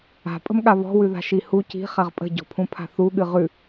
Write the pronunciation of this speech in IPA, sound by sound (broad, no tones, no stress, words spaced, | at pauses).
a̤pʼə̤mɠa βɔ̤wʉða̤ ʃihu ci̤χaʁ pʼə̤ɟɔ̤pʰũpʰa̤ θuɠɨ ʁʉ